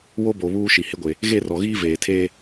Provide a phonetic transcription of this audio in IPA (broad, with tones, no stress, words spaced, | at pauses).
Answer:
wo˦bo˨ βuː˦ʃi˨hɪ˦ɡʷe˨ | ɣe˦˨ rɔ˨ɣiː˦veː˨tʰeː˦